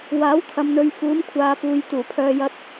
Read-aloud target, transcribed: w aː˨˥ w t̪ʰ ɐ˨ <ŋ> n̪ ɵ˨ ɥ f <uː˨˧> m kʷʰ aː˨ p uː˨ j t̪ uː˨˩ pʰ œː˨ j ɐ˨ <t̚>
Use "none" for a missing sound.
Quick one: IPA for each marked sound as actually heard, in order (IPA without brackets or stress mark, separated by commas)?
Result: m, uː˨˧, t̚